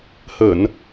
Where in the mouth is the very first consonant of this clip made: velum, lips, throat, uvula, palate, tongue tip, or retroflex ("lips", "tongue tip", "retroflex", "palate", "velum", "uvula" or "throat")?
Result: throat